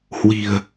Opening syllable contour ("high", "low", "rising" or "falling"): low